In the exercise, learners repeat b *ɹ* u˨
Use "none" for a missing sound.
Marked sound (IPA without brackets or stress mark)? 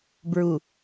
ɹ